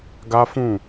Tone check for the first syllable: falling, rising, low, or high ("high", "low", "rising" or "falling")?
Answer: high